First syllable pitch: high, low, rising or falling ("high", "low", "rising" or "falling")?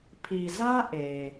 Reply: low